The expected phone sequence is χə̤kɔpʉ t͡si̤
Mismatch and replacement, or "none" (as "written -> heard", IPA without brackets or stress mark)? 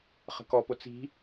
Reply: ʉ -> ʊ